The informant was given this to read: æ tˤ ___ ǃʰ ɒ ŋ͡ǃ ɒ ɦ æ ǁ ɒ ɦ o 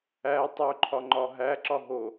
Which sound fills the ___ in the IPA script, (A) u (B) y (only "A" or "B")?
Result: A